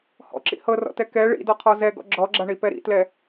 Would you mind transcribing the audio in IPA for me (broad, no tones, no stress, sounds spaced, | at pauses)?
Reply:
h ɔ̰ ǁ ḭ h ɤ r ɔ̰ t ɛ k ɛ ɭ ḭ d ɔ qʰ ɔ z ɛ ɡ ɔ̰ ɡ͡ǁ ɔ ɡ͡ǁ a ɳ i p ɛ ɾ ḭ t l ɛ